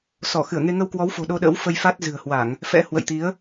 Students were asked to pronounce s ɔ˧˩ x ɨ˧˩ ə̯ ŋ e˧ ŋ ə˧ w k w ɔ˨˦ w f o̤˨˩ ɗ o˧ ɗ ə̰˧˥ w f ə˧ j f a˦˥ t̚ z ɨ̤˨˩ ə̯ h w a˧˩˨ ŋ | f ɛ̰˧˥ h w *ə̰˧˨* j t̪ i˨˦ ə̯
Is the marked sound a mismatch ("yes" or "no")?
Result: no